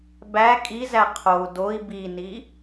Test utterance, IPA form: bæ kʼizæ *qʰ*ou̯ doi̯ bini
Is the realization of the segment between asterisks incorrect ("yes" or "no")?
no